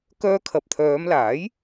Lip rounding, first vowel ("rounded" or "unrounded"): rounded